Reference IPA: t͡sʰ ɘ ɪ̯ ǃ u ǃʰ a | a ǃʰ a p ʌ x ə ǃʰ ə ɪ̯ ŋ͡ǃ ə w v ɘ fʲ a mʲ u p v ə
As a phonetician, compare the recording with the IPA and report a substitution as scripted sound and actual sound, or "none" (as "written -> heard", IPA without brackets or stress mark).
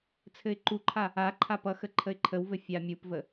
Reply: ŋ͡ǃ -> ǃʰ